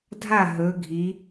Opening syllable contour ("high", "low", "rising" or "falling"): falling